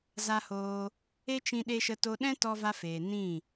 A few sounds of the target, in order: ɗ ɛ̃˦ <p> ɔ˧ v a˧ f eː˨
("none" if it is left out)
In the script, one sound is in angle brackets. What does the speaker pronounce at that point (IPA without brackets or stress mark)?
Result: t